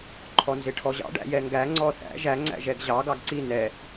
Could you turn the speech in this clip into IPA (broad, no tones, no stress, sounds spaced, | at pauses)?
ǃʰ ɔ n z ɪ ʈʰ ɔ ʑ ɑ̰ ɖ æ̰ j ɛ ŋ ɡ æ ŋ͡ǀ ɔ θ æ̰ ʒ æ ŋ͡ǀ æ̰ ʒ ɛ ɡ ʑ ɑ ɡ ɑ ɡ ǀ i n ɛ